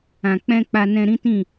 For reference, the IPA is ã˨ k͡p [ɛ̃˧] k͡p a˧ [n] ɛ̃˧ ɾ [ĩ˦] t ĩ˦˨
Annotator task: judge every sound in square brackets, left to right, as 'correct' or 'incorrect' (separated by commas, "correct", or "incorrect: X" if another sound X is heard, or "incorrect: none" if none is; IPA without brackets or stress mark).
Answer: correct, correct, correct